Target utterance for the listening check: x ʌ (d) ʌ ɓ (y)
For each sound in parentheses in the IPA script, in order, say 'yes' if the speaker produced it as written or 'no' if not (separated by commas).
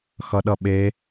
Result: no, no